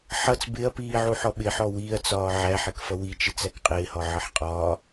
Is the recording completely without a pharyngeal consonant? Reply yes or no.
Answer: no